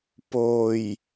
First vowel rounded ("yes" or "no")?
yes